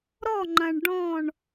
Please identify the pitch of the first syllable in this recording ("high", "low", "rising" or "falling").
falling